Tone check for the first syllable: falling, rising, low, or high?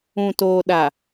low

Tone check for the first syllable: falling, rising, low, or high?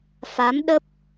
rising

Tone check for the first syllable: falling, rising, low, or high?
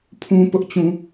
high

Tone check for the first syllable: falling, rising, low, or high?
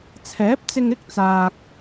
rising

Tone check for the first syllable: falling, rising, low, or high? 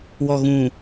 low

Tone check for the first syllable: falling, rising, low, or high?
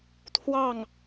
falling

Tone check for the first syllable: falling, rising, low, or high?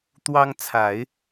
high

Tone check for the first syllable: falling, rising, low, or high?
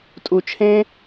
low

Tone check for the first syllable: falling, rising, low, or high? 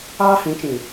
high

